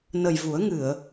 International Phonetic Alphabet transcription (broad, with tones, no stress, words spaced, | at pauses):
nə˨˩j vu˨˩˦ə̯ŋɨ˨˩˨ə̯